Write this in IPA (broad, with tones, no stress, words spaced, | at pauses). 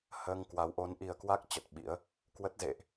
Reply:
həː˧ŋkwa˨˦w ʔo˨˦nʔi˨˩ə̯kwa˦˥k̚ t͡ɕə˨˩t̚ɓḭ˧˥ə̯ | kwə˦˥t̚zḛ˧˨ʔ